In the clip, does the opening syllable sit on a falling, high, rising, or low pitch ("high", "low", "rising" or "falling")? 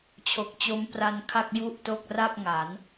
low